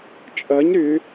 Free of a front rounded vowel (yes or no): no